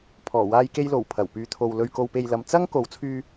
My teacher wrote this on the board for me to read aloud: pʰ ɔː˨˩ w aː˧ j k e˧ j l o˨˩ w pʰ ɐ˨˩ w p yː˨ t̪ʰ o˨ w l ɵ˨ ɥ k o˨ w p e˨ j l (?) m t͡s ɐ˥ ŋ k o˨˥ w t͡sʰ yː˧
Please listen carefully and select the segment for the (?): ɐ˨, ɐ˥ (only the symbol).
ɐ˨